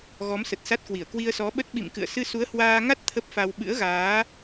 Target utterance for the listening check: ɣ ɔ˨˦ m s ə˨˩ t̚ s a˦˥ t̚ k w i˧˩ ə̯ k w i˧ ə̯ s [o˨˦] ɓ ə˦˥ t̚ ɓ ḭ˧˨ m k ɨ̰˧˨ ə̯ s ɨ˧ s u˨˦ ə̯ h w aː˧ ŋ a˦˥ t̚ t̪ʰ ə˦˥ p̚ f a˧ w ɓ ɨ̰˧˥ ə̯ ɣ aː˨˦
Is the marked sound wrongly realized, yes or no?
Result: yes